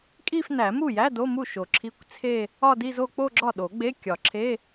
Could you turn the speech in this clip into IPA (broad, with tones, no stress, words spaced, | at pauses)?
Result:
kʼi˥˧fnæ˨˩˦ mu˥˩jæ˧˥˧ do˧˥˧mu˥˩ʃo˨˩˦ ǁʰi˧˥˧kʷt͡sʰe˥˧ | ɒ˥˧di˥˧zo˥˧ k͡po˥˧ɡ͡ǁɒ˥˩ɗo˨˩˦ ɡ͡be˧˥˧ kʲɒ˨˩˦ ǁʰe˧˥˧